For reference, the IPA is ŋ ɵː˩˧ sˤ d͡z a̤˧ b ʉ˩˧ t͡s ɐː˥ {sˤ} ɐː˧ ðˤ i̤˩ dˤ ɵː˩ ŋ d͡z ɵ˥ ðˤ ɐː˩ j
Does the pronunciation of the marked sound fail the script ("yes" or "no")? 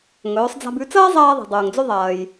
yes